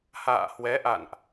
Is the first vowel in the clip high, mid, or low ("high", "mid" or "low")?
low